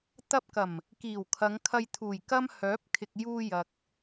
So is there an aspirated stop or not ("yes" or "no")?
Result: yes